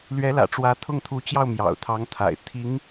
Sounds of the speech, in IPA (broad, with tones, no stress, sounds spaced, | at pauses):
l ɥ ɛ˧˥ l ä̰˨˩ ʈ͡ʂ w ä˧˥ t̪ʰ ʊ˥˩ ŋ t̪ʰ u˧˥ t͡ɕ j ɑ˥˩ ʊ̯ m j ɑ̰˨˩ ʊ̯ t̪ʰ ɑ˧˥ ŋ t̪ʰ a̰˨˩ ɪ̯ t̪ʰ i˧˥ ŋ